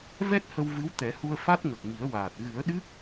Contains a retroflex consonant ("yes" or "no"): no